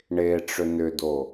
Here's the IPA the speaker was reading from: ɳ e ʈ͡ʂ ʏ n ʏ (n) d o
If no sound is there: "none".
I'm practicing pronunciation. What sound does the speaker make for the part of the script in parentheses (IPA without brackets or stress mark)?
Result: none